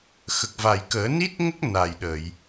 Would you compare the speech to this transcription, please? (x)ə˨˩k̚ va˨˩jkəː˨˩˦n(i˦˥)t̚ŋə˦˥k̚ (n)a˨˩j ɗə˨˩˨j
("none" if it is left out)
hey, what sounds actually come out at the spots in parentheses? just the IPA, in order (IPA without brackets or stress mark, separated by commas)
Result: x, i˦˥, n